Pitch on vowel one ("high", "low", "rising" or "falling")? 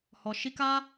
low